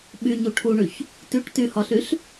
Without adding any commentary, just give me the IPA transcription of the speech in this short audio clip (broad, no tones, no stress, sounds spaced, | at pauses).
ɓ y ɲ u ʈʰ u ɳ y ç | t y ʈ t y h ɒ ɬ y ɬ